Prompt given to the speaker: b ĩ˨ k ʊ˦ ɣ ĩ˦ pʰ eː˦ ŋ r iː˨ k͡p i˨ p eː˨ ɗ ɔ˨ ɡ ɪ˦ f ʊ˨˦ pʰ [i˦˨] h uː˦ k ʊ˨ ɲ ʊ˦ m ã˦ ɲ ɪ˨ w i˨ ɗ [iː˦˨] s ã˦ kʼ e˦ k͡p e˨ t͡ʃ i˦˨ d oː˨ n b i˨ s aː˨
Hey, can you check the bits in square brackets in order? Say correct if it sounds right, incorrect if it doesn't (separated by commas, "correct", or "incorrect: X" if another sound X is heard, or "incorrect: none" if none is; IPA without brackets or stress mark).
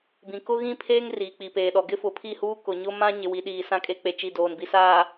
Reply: correct, incorrect: iː˨